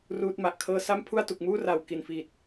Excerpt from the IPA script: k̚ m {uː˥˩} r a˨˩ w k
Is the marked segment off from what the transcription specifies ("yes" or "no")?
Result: no